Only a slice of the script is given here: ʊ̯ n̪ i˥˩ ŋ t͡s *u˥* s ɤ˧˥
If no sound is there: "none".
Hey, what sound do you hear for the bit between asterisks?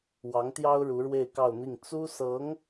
u˥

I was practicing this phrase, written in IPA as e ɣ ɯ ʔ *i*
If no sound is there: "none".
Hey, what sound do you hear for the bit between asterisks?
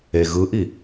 i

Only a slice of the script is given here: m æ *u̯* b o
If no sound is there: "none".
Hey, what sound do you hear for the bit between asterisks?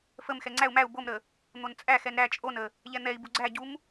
u̯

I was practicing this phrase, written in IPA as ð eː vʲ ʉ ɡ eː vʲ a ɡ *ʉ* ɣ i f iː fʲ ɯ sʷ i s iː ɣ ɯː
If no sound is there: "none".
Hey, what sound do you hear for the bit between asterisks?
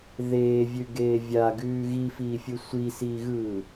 ʉː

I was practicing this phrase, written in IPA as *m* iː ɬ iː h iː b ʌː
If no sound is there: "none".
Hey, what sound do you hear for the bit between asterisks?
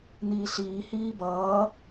n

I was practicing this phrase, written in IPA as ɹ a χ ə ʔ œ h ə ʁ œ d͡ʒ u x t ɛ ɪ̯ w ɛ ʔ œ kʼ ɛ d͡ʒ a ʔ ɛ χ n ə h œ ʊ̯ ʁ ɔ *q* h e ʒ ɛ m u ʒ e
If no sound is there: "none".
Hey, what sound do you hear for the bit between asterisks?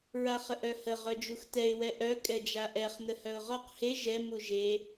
q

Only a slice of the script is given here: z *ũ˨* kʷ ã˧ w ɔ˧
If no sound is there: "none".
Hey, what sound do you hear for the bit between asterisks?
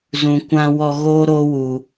ũ˨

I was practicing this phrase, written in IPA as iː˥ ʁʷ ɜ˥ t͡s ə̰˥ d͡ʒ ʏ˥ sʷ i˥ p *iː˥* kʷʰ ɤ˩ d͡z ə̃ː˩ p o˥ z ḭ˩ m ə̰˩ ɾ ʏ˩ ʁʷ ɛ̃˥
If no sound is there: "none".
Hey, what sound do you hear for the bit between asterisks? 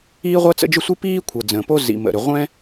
iː˥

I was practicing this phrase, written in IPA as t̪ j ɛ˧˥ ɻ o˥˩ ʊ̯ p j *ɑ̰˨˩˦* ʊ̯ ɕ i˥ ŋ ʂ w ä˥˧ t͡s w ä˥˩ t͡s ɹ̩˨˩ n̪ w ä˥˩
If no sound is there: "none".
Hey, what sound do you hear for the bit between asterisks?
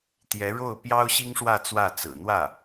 ɑ˥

